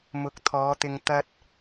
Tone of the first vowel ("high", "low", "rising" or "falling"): rising